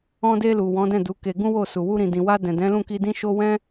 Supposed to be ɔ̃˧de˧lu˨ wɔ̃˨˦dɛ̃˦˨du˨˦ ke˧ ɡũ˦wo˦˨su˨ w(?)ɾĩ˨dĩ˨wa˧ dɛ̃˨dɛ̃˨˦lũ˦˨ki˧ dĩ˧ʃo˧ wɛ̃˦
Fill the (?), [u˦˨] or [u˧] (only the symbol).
u˧